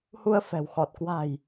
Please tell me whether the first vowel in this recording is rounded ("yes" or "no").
yes